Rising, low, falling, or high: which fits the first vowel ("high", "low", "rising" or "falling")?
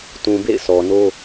low